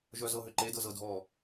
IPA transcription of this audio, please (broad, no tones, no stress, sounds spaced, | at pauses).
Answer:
ʒ œ z ɤ ɦ ʏ ǃ e d ɤ z ɤ dʱ ɔ